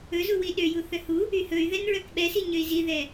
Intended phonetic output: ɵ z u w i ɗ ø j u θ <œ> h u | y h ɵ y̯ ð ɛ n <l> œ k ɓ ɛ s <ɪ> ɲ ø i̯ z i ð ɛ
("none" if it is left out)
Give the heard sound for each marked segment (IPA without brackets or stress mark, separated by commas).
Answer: œ, ɹ, i